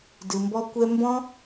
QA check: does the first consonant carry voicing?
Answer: yes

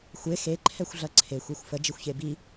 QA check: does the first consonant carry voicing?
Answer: no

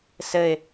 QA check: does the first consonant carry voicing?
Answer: no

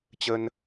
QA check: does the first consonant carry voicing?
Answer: no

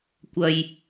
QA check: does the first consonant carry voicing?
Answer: no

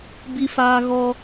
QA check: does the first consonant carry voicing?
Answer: yes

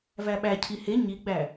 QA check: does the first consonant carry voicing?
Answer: yes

